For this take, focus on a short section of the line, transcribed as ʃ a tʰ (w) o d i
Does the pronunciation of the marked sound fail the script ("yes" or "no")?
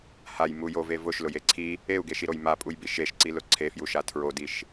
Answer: yes